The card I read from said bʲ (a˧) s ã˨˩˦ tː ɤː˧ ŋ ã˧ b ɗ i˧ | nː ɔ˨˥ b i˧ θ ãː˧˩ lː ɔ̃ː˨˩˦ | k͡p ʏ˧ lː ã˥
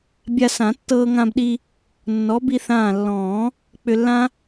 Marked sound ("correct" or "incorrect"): correct